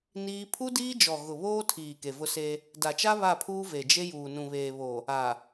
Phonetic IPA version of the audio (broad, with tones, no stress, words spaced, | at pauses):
niː˦ pʰu˦diː˦d͡ʒɔ˨ ɣʊ˨βoː˦tʰiː˨ ke˨vʊ˦se˦ | da˨t͡ʃa˦ βa˦˨pʰuː˦ ve˨d͡ʒe˦ juː˨nũ˨βeː˨βo˨ | a˨